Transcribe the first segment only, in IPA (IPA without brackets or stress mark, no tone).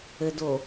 ɘ